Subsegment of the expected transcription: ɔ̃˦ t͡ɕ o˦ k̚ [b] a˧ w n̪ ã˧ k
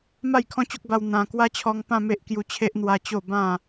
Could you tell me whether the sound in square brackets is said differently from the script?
no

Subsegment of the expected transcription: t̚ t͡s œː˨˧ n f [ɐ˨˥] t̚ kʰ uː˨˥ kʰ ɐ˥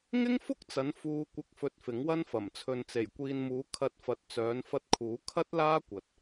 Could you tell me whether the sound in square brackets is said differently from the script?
yes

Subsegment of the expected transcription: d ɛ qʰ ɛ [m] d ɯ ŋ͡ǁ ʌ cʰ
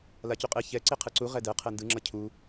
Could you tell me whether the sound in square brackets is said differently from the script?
yes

